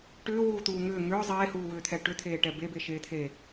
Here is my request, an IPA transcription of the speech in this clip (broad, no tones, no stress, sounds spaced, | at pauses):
ʈ ʏː w uː t̪ uː ŋ ʏː ŋ ʏː zˤ eː h uː w ʏː t̪ʰ ɛ ʈ ʏ t̪ʰ eː ʈ ɛ b e b e ʃ eː t̪ʰ e